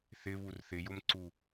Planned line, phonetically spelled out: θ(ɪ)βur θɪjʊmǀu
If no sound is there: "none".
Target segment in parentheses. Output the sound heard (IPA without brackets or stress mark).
ɪ